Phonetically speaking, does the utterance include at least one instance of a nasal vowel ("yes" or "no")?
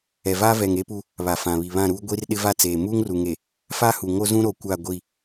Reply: yes